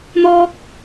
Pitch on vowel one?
high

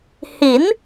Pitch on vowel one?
rising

